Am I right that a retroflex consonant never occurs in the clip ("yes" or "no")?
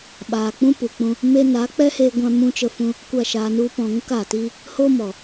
yes